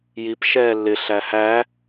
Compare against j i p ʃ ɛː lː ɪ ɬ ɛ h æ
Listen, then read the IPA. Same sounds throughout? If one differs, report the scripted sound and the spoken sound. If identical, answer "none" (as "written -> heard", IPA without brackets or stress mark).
ɛ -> æ